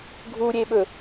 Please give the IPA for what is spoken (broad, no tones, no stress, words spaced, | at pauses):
ɡʱuɾʲeɓɵ